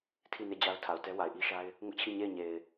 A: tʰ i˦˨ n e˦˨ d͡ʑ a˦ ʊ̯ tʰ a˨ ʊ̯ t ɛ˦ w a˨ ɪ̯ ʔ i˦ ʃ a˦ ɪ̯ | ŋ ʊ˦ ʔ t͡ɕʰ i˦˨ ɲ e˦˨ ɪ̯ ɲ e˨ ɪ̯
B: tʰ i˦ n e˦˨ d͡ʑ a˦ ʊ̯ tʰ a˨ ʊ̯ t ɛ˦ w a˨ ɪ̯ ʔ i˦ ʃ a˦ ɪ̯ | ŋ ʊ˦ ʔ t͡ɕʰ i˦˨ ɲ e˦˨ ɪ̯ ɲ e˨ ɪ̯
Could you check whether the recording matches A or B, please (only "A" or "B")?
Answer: A